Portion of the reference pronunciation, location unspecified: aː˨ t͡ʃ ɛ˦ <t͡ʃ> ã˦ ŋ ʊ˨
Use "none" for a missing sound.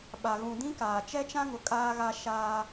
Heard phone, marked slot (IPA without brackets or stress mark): t͡ʃ